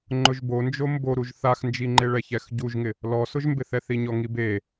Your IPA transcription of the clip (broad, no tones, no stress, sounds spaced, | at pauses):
ŋ͡ǃ ʊ ʒ b o n d͡ʒ o m b o ɾ u ʒ θ a x n d͡ʒ i ŋ͡ǃ e ɭ ɛ ç ɛ x ɟ u ʒ ŋ ɪ | l ɔ s ʊ ʒ m b ɪ θ ɛ θ i ɲ ɔ ŋ i b e